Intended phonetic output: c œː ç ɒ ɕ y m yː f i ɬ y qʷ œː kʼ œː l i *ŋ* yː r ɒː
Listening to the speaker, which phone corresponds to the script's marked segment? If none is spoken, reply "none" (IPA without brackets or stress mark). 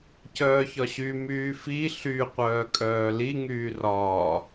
ŋ